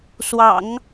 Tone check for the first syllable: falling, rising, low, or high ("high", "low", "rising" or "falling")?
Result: low